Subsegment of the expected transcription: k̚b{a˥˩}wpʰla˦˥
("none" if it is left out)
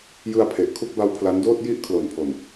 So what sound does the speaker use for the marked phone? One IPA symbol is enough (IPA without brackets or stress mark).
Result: a˦˥